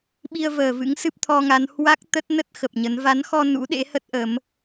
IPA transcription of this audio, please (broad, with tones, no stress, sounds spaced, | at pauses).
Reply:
ɓ i˧ ə̯ v əː˨˩ v ɨ̰˧˥ ŋ s ɨ˦˥ p̚ t̪ʰ ɔ˧ ŋ a˨˦ n h w a˦˥ k̚ t̪ ə˦˥ t̚ n ə˦˥ t̚ x ə˨˩ p̚ ɲ ə˨˦ n v a˨˦ n x ɔ˧ n ṵ˧˥ ɗ ḛ˧˥ h ə˦˥ t̚ ʔ əː˨˦ m